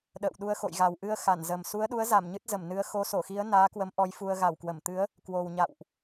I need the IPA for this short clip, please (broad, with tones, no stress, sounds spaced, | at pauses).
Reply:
ɗ ə̰ː˧˨ w ɗ u˧ ə̯ x o̰˧˨ j ɣ a˨˩ w ʔ ɨ˧ ə̯ x a˧˩ n z ə˨˩ m s u˨˦ ə̯ ɗ u˨˦ ə̯ z a˧˩ m ɲ ɨ˦˥ t̚ z ə˧˩ m n ɨ˨˦ ə̯ x o˨˦ s o˧˩ x i˨˦ ə̯ n aː˨˦ k w ə˨˦ m ʔ ɔ˨˦ j f u˧ ə̯ ɣ a˧˩ w k w ə˧˩ m t̪ ɨ˨˦ ə̯ | k w o˨˩ w ɲ a̰˧˨ w ʔ